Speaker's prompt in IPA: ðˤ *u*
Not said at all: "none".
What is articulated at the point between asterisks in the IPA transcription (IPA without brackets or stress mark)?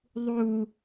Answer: u